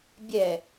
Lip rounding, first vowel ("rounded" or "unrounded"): unrounded